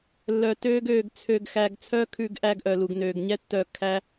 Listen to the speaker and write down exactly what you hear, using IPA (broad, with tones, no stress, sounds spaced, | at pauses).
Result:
lː œ˨ t øː˧ ɡ øː˨ ɡ t͡sʰ ø˨ ɡ x æ˨ ɡ t͡sʰ œː˦ kʰ ʉ˧ ɡ ʔ æ˧ ɡ ʔ œ˨ l u˨ ɡ n øː˨ ɡ ɲ ɛ˦ tː œː˧ kʰ æ˧